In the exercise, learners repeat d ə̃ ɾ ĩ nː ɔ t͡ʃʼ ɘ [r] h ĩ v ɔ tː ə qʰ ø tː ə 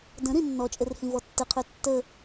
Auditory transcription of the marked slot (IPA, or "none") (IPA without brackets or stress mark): r